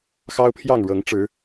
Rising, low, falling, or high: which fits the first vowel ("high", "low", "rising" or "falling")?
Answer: high